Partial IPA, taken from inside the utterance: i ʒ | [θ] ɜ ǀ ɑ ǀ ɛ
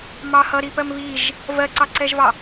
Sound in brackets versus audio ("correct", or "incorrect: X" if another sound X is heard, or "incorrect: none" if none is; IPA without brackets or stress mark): incorrect: v